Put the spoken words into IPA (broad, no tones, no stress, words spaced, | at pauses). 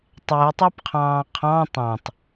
tˤɛʊ̯tˤɑpqʰɑ̃ː qʰɑ̃ tˤɑ̃tˤ